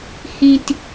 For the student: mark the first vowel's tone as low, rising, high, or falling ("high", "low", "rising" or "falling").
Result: high